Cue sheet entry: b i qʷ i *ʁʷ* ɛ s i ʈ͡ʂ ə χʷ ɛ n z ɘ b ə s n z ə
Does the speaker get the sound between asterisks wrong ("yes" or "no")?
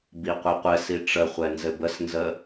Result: yes